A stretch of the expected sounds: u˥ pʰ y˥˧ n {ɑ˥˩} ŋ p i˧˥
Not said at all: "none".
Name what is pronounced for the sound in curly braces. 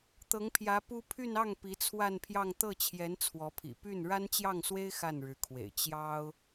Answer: ɑ˥˩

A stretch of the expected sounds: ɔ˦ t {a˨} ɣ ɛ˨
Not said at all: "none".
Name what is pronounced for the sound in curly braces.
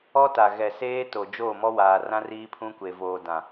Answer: a˨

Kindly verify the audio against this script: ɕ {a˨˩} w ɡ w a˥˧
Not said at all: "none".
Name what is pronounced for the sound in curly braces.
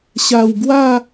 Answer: a˨˩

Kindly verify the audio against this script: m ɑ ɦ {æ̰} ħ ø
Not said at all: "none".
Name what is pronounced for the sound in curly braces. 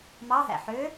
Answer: æ̰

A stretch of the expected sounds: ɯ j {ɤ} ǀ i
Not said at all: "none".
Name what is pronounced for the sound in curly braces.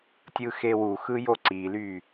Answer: o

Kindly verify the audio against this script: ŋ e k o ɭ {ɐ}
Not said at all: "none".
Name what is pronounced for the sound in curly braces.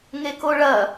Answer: ɐ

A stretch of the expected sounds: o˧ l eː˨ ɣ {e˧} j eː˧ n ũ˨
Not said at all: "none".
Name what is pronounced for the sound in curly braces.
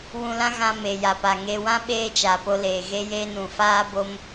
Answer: e˧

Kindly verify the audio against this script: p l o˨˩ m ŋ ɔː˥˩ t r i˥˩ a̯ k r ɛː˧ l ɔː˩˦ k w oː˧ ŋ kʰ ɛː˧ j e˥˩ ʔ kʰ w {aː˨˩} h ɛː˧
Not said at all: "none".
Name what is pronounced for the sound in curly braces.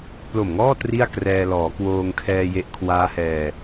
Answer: aː˦˥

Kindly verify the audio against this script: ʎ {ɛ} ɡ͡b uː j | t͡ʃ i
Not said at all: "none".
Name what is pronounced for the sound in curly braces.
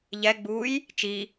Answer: ɛ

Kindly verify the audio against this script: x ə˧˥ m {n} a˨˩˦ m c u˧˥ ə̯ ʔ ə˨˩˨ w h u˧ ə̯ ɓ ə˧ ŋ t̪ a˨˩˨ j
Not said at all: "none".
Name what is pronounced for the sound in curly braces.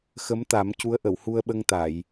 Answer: t̪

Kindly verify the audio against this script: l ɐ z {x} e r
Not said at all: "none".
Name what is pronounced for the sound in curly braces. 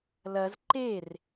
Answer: ǃ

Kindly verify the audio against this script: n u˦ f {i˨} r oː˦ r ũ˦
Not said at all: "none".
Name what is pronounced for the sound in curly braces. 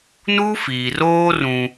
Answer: iː˨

